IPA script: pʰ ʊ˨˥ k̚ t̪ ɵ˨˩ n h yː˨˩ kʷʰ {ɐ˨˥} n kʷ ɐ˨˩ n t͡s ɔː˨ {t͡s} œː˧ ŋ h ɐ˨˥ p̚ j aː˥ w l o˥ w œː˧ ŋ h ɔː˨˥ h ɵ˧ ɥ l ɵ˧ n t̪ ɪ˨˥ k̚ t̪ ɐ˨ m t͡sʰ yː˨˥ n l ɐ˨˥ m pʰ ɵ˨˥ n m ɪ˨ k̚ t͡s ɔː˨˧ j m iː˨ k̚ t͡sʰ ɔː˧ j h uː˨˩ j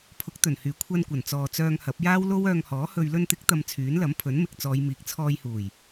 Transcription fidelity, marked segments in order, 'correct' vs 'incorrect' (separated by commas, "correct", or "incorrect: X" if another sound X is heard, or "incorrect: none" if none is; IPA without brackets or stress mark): incorrect: ɐ˧, correct